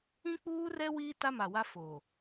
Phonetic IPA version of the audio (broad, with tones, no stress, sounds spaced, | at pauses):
ĩ˦ k͡p uː˦ r ɛ˦ w iː˦ t a˦ m a˨ w a˦ f o˨